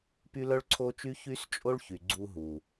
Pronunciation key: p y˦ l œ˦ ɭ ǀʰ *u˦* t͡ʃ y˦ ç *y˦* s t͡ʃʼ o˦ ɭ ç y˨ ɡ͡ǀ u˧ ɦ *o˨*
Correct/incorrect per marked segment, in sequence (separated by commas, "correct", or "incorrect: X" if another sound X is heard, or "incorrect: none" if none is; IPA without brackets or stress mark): incorrect: o˦, correct, incorrect: u˨